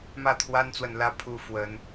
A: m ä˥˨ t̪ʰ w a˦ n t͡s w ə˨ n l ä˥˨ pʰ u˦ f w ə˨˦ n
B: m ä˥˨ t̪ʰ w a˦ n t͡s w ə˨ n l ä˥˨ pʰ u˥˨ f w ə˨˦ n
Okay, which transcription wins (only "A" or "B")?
B